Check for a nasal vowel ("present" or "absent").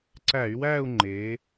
absent